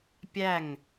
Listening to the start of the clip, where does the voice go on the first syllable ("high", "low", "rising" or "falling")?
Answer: falling